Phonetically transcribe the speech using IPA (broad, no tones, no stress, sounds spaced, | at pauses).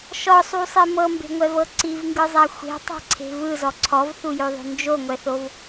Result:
ʃ ɔ sˤ u sˤ i m ɤ m b e̤ ŋʷ ɛ v ɤ ǀ i v ŋ ɡ ɯ zˤ a xʷ e̤ tˤ e̤ ǀʰ e̤ v ɯ z ɔ ǀʰ ɔ v θ u j o ðˤ o̤ n d͡ʒ o ŋʷ ɛ θ o v